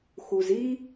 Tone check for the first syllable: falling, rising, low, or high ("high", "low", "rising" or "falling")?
low